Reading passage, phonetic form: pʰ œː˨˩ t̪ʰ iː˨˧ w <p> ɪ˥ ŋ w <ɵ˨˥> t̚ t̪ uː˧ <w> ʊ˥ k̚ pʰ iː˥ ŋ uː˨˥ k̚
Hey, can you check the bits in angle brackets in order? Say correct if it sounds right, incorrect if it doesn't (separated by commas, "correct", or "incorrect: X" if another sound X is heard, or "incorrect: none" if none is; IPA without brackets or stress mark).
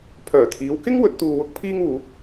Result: incorrect: k, correct, correct